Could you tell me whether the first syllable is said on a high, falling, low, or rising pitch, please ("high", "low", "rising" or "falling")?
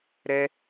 high